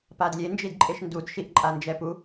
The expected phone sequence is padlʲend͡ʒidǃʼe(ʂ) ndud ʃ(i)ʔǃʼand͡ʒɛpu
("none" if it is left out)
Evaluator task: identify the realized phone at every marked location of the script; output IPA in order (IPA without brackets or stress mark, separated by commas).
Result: ʃ, i